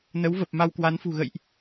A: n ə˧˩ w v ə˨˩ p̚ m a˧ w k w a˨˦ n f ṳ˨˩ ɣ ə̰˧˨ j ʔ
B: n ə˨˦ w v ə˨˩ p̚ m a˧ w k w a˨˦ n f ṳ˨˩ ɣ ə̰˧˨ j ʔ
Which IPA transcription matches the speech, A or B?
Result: B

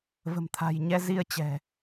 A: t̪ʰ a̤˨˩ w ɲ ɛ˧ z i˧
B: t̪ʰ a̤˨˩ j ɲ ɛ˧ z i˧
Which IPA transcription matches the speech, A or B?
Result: B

